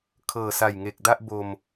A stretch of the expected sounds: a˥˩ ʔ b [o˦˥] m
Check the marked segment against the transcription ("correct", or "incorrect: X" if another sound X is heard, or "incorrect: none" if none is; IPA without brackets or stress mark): incorrect: o˧